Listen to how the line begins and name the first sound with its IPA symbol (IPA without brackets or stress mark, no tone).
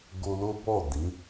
ɡ